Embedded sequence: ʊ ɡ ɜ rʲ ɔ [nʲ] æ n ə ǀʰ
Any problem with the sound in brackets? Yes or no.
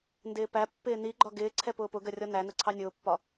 yes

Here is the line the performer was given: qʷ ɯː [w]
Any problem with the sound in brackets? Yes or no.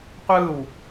no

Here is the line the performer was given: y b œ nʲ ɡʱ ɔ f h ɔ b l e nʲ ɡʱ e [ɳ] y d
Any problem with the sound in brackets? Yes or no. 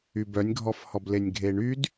no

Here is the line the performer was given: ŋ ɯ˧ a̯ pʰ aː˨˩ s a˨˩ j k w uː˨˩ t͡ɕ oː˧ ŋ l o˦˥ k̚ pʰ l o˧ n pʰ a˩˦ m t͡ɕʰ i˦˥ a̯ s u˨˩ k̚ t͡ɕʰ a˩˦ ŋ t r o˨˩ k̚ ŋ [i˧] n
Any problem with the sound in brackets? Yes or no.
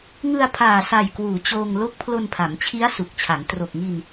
no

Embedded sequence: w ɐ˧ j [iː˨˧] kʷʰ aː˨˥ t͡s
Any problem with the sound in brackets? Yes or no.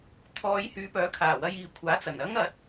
no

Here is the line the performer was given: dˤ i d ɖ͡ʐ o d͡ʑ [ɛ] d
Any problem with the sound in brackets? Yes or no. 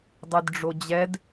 no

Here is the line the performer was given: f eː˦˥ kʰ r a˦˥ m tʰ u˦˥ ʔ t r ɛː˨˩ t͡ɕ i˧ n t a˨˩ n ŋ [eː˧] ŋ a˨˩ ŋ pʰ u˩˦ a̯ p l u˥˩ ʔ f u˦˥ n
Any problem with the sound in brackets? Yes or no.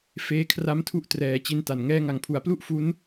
yes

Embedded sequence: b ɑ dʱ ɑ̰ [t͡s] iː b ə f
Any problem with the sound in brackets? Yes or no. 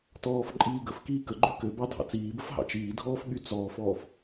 no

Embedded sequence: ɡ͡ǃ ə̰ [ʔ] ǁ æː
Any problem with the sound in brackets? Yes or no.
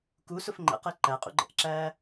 no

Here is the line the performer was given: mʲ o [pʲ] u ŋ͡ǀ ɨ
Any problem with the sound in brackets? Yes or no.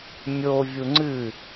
yes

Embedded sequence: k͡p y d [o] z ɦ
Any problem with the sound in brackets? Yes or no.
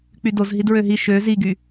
no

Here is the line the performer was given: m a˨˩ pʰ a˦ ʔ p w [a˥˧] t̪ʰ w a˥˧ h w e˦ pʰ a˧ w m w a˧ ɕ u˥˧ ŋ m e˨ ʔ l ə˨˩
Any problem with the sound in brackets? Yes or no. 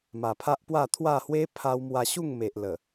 no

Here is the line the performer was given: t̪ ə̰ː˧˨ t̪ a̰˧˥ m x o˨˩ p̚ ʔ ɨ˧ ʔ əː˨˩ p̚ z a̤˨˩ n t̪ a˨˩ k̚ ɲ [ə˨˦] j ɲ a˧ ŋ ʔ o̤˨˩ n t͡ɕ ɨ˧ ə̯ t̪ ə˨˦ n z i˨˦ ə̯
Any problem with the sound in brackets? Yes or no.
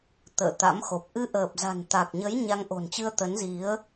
no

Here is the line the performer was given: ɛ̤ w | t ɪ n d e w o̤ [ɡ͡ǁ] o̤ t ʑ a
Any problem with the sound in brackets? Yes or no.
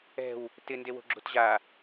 no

